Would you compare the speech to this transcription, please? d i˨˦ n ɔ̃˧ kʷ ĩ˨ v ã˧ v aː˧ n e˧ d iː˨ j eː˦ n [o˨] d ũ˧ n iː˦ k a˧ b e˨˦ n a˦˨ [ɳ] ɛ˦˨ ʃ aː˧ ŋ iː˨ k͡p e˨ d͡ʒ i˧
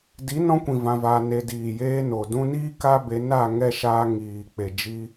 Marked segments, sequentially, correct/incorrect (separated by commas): correct, incorrect